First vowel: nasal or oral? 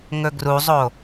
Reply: oral